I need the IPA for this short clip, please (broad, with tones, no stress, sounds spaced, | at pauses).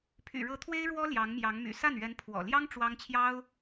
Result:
pʰ y̰˨˩ ɻ ɤ˧˥ t̪ʰ w e˥ ɪ̯ ɻ w ɔ˥ l j ɑ˧˥ ŋ m j ɑ˧˥ ŋ m y̰˨˩ s a˥˩ n ɥ ɛ˧˥ n pʰ w ɔ̰˨˩ l j ɑ˥ ŋ ʈ͡ʂ w ɑ˥ ŋ t͡ɕʰ j ɑ˥ ʊ̯